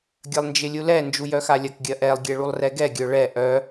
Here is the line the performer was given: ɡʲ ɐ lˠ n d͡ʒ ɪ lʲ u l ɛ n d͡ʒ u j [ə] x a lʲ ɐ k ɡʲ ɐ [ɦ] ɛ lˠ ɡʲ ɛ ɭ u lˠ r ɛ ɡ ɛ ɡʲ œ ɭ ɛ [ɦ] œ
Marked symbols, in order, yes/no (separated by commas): no, no, no